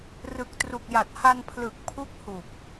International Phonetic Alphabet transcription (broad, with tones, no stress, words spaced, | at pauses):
rɯ˨˩k̚tru˨˩k̚ja˨˩t̚ ha˧npʰlɯ˨˩k̚ pʰu˦˥k̚hu˨˩k̚